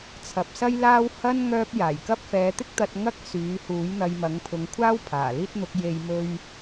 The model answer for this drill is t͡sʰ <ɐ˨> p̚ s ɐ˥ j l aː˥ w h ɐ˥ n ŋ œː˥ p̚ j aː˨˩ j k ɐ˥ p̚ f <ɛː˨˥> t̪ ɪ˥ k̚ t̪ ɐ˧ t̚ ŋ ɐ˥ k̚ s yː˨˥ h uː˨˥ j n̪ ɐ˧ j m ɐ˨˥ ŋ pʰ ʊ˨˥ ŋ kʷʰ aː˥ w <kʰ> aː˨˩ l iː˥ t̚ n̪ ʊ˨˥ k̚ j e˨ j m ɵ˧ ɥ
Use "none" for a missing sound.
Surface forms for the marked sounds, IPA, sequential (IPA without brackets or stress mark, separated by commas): ɐ˨˥, ɛː˨˥, pʰ